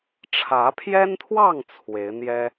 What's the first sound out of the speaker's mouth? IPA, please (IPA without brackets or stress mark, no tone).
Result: ʈ͡ʂʰ